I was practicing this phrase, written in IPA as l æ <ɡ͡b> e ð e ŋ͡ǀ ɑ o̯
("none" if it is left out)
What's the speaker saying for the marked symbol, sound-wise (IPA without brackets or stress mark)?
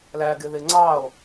ɡ